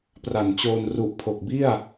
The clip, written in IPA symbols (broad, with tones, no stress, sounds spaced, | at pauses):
p r a˨˩ n t͡ɕ oː˧ n r u˨˩ ʔ pʰ o˨˩ k̚ b i˥˩ a̯